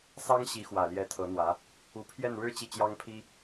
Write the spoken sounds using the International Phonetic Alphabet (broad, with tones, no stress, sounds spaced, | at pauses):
s ɑ˥ ŋ ɕ i˧˥ x w ä˨˩ l j ɛ˧˥ t̪ʰ ɤ˧˥ n̪ w ä˧˥ | u˧˥ pʰ j ɛ˥˩ n ɻ ɻ̩˥ t͡ɕ i˥˩ t͡ɕ j ɑ˥ ŋ pʰ i˥